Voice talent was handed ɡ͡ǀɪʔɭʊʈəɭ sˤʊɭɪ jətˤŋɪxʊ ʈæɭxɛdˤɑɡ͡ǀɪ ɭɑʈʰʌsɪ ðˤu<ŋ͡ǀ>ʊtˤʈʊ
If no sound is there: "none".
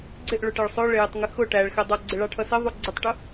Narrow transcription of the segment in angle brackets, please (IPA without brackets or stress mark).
ɡ͡ǀ